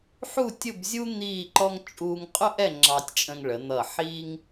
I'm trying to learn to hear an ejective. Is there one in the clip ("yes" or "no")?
yes